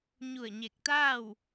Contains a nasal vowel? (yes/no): no